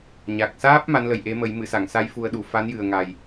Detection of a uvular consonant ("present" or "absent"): absent